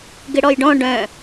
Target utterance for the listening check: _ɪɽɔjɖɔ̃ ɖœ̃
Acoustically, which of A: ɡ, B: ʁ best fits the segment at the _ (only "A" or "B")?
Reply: A